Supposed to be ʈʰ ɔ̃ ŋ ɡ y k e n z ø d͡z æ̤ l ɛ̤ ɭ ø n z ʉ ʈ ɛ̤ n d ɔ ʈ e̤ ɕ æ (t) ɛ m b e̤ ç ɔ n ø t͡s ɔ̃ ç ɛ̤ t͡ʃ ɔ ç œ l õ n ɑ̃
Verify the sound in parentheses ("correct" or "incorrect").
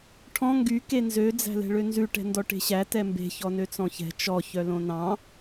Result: correct